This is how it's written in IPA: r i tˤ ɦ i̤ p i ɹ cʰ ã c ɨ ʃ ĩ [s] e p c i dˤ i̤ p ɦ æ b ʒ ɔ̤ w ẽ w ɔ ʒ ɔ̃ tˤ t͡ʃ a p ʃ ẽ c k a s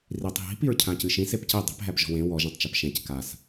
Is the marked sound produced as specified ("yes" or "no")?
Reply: yes